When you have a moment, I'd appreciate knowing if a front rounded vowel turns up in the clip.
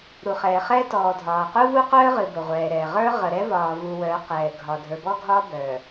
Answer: yes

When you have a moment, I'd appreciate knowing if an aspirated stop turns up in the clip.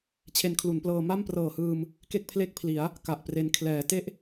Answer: yes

